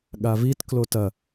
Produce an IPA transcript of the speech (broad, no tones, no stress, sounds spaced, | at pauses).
ɠ a v i t k l o t ɐ